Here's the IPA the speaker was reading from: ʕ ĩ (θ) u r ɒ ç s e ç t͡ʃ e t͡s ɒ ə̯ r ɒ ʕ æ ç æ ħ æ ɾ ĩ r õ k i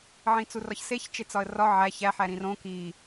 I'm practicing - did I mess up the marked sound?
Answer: yes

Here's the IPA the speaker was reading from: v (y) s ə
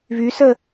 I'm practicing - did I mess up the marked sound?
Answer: no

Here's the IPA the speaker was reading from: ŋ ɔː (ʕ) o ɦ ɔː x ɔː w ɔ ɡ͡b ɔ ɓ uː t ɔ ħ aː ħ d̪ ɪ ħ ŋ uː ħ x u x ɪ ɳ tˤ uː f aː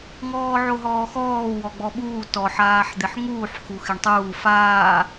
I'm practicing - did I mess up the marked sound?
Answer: no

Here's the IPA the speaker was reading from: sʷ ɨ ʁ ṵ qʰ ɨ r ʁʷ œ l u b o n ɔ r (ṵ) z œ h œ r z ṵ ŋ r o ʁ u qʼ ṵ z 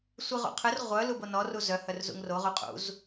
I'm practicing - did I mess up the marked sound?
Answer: yes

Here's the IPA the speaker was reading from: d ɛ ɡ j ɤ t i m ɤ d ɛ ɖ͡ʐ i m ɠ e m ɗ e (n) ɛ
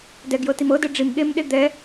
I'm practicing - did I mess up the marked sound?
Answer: yes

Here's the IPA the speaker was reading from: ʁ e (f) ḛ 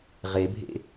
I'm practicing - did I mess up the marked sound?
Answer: yes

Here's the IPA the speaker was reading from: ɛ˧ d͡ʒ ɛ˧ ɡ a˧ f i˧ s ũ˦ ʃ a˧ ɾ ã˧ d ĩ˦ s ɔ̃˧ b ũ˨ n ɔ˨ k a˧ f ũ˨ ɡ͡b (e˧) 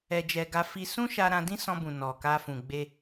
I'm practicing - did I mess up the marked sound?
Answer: no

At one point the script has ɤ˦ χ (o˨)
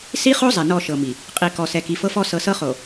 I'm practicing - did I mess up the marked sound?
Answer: no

